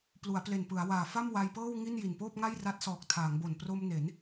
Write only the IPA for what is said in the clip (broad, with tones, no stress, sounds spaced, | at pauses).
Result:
p l u˩˦ a̯ p l e˨˩ n p ɯ˩˦ a̯ w aː˨˩ f a˥˩ m w a˧ j p ɤː˥˩ w ŋ i˥˩ n j i˨˩ n p oː˥˩ p̚ ŋ a˥˩ j r a˦˥ t̚ s ɔː˨˩ k̚ tʰ aː˩˦ ŋ b o˨˩ n p r o˧ m n e˩˦ n